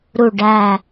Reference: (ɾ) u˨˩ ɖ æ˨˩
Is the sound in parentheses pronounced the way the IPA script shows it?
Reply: yes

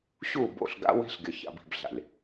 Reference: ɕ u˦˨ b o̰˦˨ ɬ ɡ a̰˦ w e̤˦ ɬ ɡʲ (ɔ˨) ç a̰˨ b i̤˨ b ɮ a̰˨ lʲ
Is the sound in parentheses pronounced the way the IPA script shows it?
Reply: no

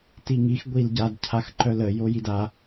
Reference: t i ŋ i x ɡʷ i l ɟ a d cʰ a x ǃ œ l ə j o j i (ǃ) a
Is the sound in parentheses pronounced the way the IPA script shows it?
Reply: no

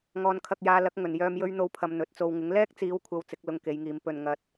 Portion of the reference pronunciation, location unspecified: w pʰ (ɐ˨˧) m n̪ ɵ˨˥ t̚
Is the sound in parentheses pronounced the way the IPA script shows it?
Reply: yes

